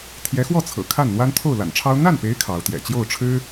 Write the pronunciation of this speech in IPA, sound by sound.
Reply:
t̪ʰ j ɛ˧˥ x w ɔ˥˩ t͡sʰ ɤ̰˨˩ kʰ a˥˩ n n̪ w a˥ n t̪ʰ o˥˩ ʊ̯ l a̰˨˩ n ʈ͡ʂʰ ɑ˥ ʊ̯ n̪ a˥˩ n p e˧˥ ɪ̯ kʰ ɑ˧˥ ʊ̯ t̪ j ɛ̰˨˩ t͡ɕ j o˥˩ ʊ̯ ʈ͡ʂʰ ɻ̩˥

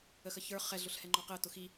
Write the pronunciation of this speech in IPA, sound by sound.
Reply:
ə x ə ç ə˞ χ ɛ ɮ ʊ ɬ h ɛ ŋ͡ǃ ɔ q ɪ ə̯ t ʊ x i

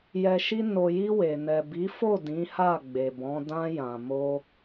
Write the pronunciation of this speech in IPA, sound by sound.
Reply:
j ɛ˨ ʃ i˧ n o˨ j i˧ w e˨ n ɛ˨ b i˨˦ f o˦˨ d ĩ˨˦ h a˦˨ ɡ͡b e˨ b ɔ̃˨˦ d ã˧ j ã˨ m o˧

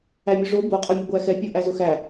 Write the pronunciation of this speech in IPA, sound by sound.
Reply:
æ mʲ ʊ ʐ o b o qʼ ɤ mʲ ʊ ɡʷ æ x ɛ pʲ o ʔ æ z ʊ x æ

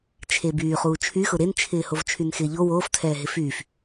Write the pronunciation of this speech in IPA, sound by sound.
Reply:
t͡ʃʰ e b yː χ uː t͡ʃʰ y x ʊ ɾ e n t͡ʃʰ ɪː h o v t͡ʃʰ y n x ɪː ʎ o w oː f tʰ ɛː ɦ ɪ f yː f

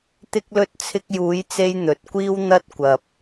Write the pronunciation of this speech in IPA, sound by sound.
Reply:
t̪ ɪ˥ k̚ l ɵ˥ t̚ t͡sʰ ɪ˧ k̚ j uː˨˧ j t͡s e˧ j n̪ ɵ˧ t̚ kʷ iː˥ w n̪ ɐ˥ t̚ kʷ ɐ˧ p̚

